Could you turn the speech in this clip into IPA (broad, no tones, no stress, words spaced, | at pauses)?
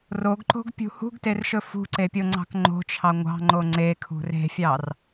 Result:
roɡǃo̤ɡpʲṳ hṳɡterʃɵ fṳǀepʲoŋ͡ǀɑ̤k ŋ͡ǃo̤t͡ʃʰɑ ŋʷɑ̤ŋ͡ǃo ŋ͡ǀekʰṳ re̤fʲɑr